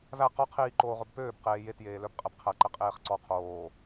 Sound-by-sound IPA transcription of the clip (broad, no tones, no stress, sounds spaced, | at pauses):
v æ q ɔ qʰ iː ǃ oː ʁ ɵ b p øː b q eː j e t j eː l œ b qʼ æ b qʰ æ ǃ ɛ qʼ eː χ ǀ ɔ qʰ oː